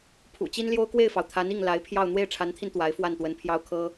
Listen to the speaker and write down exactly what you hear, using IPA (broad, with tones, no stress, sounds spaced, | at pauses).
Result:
pʰ ṵ˨˩ t͡ɕ i˥ n l j o˥ ʊ̯ k w e˥˩ ɪ̯ f ɑ˩ ʊ̯ t̪ʰ a˧˥ n i˥˩ ŋ l a˧˥ ɪ̯ pʰ j ɑ˥˧ ʊ̯ n̪ w e˥˩ ɪ̯ ʈ͡ʂʰ a˧˥ n t̪ʰ i˧ n t̪ w a˧˥ ɪ̯ f w a˥˩ n t̪ w ə˧˥ n pʰ j ɑ˥ ʊ̯ kʰ ɤ˥